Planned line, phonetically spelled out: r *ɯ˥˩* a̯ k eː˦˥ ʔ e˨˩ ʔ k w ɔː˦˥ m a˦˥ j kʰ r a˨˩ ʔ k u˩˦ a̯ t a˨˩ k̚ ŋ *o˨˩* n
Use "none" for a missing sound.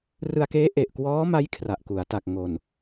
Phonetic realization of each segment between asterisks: ɯ˧, o˨˩

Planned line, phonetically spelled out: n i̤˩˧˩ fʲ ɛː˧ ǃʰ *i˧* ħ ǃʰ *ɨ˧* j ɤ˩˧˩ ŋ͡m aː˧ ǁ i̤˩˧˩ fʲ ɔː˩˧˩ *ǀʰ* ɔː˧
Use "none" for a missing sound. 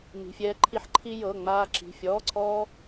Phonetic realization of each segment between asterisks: i˧, i˧, ǀʰ

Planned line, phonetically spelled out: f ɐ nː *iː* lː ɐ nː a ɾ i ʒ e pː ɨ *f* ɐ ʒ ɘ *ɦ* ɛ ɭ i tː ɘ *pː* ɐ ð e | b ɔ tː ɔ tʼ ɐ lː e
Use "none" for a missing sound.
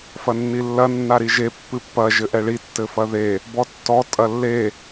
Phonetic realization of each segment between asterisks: i, pː, ʔ, f

